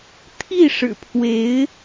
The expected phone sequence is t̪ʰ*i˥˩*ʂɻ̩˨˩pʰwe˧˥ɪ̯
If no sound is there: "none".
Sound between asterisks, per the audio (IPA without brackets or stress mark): i˥˩